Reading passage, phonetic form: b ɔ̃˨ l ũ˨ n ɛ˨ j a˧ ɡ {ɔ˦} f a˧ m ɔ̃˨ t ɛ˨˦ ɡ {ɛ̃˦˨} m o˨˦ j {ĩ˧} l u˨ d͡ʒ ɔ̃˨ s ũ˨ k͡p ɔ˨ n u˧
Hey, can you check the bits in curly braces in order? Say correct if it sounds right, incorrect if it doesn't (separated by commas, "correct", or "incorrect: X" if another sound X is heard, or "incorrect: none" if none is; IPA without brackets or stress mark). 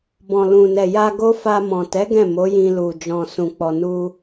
incorrect: o˦, correct, correct